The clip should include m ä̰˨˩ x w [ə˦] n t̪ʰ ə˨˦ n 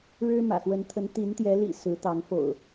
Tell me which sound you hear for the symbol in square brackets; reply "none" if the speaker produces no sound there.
ə˨˦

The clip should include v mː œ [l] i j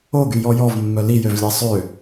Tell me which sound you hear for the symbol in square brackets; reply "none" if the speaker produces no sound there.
l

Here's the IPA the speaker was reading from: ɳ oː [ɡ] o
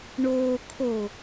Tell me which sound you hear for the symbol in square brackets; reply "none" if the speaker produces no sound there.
kʰ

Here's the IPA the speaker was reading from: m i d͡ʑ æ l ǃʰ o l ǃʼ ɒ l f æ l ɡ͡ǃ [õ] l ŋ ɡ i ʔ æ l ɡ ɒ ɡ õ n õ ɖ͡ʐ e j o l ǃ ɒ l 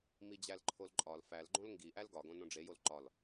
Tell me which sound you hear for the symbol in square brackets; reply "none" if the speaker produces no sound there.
õ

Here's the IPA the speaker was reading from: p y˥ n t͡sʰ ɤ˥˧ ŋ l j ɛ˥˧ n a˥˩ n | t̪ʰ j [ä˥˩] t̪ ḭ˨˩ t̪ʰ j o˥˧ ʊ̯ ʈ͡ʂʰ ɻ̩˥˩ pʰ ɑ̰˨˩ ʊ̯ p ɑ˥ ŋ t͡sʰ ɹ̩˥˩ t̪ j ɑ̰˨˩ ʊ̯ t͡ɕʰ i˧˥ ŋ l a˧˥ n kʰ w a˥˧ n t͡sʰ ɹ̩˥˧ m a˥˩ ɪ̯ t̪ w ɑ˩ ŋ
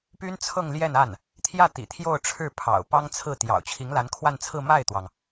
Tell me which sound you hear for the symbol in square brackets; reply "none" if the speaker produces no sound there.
ä˥˩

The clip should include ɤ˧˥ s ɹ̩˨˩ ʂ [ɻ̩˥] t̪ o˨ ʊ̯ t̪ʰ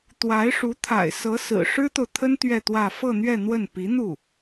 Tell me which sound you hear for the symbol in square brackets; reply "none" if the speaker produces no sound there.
ɻ̩˥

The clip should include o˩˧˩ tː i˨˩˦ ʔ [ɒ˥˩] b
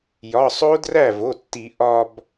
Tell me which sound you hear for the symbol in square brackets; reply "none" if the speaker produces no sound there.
ɒ˧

